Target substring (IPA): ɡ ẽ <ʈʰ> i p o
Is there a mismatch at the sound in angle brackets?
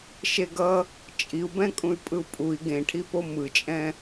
no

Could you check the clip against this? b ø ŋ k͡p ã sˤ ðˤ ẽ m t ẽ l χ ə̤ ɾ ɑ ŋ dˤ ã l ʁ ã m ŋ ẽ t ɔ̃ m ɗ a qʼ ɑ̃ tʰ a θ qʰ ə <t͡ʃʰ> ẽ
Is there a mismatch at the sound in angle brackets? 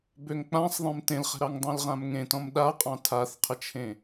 no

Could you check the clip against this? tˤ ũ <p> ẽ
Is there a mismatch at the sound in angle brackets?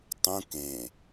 yes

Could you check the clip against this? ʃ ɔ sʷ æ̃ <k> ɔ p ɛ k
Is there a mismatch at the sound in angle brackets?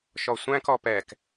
no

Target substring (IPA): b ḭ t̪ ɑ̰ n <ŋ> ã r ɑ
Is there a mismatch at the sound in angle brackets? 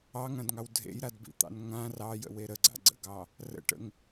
no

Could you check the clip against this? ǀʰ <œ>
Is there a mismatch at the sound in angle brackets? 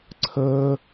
yes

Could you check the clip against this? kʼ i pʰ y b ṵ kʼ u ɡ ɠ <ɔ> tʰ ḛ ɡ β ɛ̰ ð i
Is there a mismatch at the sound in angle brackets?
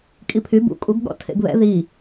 yes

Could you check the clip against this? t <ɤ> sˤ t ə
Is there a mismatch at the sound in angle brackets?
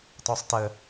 yes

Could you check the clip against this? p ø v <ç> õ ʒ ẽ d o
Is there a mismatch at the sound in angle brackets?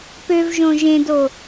yes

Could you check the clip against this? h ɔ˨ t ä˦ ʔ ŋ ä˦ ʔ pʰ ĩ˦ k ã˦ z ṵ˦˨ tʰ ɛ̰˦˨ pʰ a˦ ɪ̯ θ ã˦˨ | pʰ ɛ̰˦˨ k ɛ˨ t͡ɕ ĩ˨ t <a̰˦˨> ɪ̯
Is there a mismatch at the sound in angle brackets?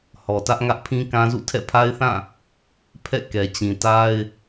yes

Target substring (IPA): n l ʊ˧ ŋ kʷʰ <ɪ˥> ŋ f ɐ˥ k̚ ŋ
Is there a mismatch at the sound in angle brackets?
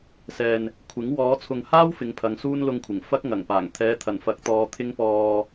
yes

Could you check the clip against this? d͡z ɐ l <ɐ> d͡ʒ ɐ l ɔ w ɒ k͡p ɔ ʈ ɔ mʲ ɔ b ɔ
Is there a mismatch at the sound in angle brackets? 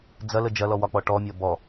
yes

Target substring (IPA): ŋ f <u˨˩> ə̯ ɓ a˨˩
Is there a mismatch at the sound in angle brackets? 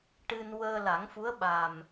yes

